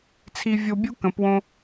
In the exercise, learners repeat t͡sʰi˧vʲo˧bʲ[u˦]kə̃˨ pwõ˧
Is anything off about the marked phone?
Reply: no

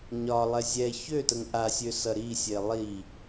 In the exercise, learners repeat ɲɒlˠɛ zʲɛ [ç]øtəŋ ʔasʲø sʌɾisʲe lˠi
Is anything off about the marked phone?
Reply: no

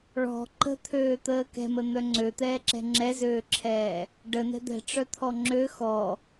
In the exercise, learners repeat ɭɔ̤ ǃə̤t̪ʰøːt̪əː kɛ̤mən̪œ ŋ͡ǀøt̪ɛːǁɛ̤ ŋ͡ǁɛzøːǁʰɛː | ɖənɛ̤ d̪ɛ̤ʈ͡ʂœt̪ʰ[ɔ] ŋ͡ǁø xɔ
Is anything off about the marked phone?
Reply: no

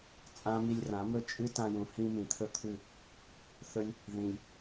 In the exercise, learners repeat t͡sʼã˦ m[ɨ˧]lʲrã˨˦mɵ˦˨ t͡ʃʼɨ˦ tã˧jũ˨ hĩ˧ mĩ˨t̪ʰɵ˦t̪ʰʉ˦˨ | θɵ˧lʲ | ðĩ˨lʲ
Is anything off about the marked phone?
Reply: yes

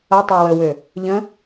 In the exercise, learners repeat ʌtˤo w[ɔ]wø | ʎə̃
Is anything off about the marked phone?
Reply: yes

